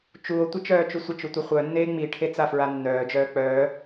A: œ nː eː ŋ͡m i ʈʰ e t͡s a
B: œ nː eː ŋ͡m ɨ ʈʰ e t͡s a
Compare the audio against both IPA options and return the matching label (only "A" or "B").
A